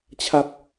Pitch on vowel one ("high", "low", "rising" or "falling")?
high